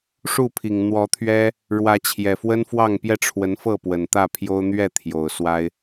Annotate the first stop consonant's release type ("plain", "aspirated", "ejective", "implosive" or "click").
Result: aspirated